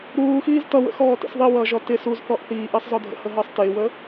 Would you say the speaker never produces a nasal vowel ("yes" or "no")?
yes